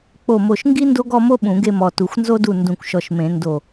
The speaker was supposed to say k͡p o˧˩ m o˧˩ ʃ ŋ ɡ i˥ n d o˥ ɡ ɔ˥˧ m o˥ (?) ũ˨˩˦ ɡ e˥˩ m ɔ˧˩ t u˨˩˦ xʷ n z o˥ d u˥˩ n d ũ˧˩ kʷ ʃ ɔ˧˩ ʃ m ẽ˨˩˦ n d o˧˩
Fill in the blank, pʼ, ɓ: ɓ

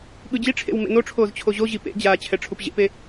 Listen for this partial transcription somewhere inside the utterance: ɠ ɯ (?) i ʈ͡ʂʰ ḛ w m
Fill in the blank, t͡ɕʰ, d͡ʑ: d͡ʑ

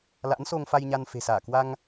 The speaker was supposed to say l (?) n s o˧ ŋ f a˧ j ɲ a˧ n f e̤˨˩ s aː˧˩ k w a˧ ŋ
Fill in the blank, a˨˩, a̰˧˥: a̰˧˥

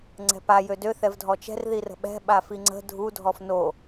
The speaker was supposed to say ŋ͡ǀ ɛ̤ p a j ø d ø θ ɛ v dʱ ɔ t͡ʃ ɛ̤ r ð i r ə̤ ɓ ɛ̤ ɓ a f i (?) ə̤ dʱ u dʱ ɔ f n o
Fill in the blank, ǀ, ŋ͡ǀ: ŋ͡ǀ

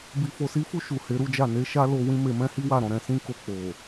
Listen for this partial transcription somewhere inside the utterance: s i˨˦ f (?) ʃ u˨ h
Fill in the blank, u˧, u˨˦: u˧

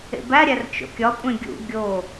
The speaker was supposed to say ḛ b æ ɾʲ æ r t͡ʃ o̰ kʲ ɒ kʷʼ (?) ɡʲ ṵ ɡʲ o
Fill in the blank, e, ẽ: ẽ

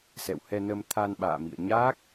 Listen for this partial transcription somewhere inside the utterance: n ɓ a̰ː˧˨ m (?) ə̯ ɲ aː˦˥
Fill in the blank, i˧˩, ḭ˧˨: ḭ˧˨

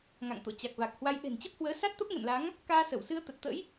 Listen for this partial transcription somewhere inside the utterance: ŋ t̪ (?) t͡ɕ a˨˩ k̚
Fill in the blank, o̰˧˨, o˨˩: o̰˧˨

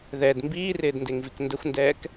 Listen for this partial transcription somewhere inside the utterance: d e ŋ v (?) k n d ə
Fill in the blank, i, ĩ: i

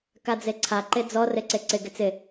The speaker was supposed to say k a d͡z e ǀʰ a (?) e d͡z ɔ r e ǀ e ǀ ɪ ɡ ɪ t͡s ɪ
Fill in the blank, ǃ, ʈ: ǃ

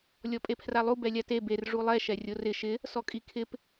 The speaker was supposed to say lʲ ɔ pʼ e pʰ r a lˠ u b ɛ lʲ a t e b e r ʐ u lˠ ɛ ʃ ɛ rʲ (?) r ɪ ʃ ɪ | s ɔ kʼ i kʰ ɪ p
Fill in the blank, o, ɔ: o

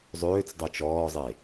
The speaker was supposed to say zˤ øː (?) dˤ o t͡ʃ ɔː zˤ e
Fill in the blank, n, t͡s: t͡s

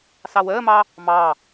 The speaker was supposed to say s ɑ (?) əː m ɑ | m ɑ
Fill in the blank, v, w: w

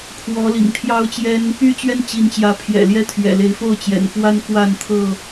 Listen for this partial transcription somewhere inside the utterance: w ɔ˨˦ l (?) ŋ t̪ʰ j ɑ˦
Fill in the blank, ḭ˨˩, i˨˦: ḭ˨˩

